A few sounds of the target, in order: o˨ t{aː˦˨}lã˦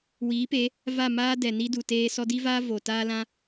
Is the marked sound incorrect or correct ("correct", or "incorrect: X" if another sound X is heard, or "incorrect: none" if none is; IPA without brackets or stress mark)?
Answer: incorrect: aː˦